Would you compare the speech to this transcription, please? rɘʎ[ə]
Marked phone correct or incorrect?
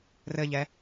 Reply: incorrect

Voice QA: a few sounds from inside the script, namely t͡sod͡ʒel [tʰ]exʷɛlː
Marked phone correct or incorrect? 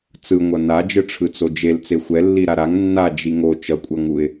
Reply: incorrect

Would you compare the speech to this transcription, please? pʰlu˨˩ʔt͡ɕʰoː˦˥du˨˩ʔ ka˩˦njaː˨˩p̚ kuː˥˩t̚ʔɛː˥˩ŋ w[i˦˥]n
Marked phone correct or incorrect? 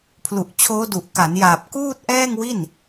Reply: incorrect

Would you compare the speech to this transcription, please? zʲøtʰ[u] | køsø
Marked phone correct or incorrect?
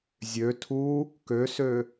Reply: correct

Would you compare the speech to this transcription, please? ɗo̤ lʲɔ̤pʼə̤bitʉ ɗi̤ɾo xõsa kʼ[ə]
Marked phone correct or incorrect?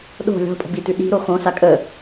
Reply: correct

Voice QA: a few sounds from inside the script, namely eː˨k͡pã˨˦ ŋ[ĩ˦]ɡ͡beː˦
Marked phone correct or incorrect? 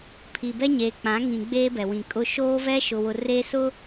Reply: incorrect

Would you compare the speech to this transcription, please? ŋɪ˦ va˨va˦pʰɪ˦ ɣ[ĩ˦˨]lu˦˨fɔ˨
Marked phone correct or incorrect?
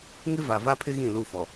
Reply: correct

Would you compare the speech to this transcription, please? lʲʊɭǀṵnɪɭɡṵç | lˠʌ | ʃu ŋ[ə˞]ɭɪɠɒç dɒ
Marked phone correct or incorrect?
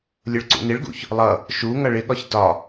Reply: incorrect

